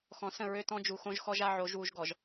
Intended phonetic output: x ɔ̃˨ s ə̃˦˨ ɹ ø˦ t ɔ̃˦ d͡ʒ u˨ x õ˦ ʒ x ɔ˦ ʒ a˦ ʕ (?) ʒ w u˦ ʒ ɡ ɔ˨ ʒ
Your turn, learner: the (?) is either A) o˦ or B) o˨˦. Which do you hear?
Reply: B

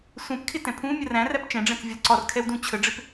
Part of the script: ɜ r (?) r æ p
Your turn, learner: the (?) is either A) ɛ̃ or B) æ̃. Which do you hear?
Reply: B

